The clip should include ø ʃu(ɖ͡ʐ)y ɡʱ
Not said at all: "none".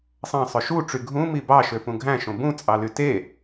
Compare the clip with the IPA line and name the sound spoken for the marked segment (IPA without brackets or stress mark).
ʈ͡ʂ